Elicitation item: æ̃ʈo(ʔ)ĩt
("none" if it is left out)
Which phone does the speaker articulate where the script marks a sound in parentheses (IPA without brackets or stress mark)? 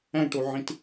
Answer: ʕ